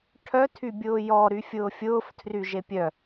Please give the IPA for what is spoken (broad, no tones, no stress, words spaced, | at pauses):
ʈʰœtʰybʲʊː jɔɾyfʲʊː fʲʊːf tʰryʒepʲœ